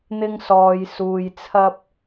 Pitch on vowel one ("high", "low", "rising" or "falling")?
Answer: high